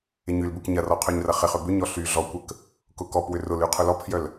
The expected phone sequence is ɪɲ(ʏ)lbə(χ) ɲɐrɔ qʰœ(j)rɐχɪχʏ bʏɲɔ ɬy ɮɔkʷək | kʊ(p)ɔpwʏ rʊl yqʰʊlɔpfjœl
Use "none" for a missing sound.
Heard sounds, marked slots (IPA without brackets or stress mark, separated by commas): y, k, ɲ, k